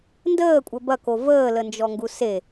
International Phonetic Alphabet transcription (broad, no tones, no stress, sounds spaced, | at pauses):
n d əː kʷʼ ə b ɐ k o v əː l ə n d͡ʒ ɔ ŋ ɡ u s e